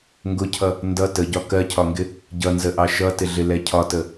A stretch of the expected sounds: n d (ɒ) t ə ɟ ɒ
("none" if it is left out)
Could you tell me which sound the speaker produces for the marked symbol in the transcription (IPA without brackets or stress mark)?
ʌ